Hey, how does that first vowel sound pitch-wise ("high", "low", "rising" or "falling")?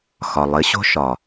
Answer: low